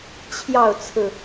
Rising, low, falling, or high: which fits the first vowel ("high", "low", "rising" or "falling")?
falling